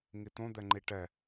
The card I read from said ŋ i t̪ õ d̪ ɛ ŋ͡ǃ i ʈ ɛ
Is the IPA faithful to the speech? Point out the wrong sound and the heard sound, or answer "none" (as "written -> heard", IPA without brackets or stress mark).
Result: none